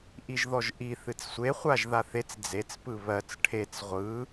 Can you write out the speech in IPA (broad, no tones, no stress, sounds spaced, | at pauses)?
ʔ i ʒ ð ɔ ʒ ʔ i θ ɨ t͡s sʷ e χʷ a ʒ ð a θ e t͡s d͡z e t͡s p ɯ β ɜ t͡s ʈʰ e t͡s ʁʷ ɯ